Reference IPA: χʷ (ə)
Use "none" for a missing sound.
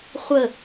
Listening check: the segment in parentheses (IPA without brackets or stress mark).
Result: ə